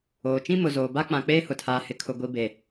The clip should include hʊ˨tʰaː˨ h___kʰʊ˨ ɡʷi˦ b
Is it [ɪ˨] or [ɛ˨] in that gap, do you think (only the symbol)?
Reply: ɪ˨